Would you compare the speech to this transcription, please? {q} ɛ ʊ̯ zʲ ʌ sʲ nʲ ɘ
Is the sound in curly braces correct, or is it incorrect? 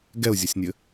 incorrect